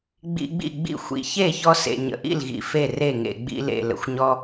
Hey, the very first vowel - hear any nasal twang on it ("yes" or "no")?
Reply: no